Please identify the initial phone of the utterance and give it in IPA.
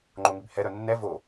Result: ŋ͡ǃ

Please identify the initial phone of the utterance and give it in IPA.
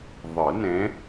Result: ðˤ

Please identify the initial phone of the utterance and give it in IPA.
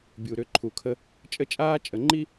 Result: bʲ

